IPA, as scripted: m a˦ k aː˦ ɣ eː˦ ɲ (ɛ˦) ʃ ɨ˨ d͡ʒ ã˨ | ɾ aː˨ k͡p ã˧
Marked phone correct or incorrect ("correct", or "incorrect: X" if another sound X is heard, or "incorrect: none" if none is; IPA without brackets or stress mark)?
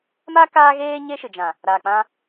incorrect: e˦